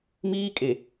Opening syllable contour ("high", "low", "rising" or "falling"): high